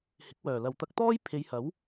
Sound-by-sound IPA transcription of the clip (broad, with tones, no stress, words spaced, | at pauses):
hɪ˨˥k̚wœː˨˩lɐ˨w t̪ɐ˧k̚t̪ɔː˥j pʰe˨˧jhɐ˨˥w